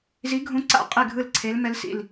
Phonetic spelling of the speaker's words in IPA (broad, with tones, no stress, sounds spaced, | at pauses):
z i˧˥ ɡʱ ũ˧˥ ǀ a̰˧˥ qʼ e˥˨ ɡʱ ɯ˥˨ l ǀʰ e˧˥ l m ɛ˧˥ l s ḭ˥˨ l